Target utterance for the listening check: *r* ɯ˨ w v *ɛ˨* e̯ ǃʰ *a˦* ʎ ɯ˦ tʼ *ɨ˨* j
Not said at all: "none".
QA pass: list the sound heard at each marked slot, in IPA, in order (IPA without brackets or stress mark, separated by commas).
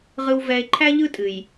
ʁ, ɛ˨, æ˦, ɨ˨